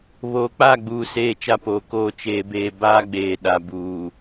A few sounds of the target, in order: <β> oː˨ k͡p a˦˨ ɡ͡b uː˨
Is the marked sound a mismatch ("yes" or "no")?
no